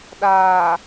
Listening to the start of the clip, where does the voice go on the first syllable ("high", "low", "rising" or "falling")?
low